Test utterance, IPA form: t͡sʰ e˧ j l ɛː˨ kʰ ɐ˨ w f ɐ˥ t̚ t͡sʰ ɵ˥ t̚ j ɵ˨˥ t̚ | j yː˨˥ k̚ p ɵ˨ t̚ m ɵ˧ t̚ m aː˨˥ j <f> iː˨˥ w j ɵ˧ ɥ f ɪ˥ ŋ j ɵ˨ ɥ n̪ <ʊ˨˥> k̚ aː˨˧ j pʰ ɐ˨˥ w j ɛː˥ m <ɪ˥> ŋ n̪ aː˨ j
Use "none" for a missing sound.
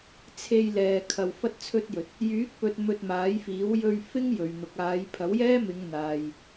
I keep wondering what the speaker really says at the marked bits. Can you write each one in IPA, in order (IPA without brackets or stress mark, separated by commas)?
f, ʊ˨˥, ɪ˨˧